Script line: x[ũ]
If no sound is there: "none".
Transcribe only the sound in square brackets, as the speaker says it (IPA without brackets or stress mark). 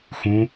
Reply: ũ